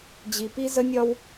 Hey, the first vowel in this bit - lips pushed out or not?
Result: no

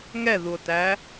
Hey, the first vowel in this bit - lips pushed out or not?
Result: no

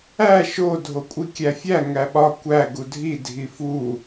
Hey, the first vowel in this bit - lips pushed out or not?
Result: no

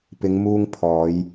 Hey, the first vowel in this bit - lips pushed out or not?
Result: no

